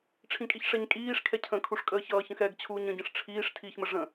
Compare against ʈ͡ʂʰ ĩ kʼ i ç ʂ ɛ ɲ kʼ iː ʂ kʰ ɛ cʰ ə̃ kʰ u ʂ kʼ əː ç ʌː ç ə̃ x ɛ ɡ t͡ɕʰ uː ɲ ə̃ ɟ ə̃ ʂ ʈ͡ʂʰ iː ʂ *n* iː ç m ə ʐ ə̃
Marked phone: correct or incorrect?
incorrect